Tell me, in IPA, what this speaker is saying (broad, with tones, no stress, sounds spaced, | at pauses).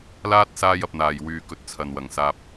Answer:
l aː˥ t̚ s aː˧ j ɐ˨ p̚ n̪ aː˨˩ j w yː˨ k ɵ˨ t̚ t͡sʰ ɐ˨ n w ɐ˨˩ ŋ s aː˧ p̚